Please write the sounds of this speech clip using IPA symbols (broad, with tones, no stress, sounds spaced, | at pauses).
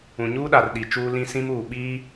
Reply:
ũ˨ ɲ uː˦ ɗ a˨ r ɗ i˨ t͡ʃ uː˦ l ĩ˦ s ĩ˦ m uː˨ ɓ iː˦